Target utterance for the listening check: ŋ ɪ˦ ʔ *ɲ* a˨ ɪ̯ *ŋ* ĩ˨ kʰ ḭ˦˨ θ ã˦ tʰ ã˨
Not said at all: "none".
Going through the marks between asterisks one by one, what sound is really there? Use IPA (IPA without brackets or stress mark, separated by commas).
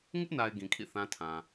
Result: n, ɡ